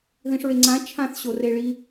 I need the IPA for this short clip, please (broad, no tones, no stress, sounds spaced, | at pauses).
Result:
ð ĩ ʂ ɹ e ŋ͡ǀ ã t͡ʃʰ ã θ ɕ o r e ɭ i